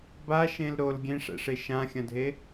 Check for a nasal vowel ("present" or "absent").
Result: present